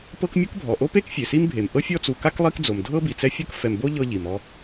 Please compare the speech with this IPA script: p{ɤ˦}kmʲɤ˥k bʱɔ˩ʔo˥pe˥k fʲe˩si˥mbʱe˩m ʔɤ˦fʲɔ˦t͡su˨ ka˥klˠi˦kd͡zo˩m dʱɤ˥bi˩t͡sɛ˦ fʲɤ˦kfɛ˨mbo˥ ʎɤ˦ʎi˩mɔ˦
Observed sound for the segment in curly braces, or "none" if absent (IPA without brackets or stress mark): ɤ˦